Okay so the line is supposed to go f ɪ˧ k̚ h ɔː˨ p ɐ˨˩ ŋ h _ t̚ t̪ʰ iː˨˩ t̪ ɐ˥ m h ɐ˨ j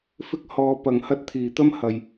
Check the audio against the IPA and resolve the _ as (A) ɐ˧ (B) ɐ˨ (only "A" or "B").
A